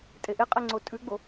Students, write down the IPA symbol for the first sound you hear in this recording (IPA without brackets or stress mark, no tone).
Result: tʼ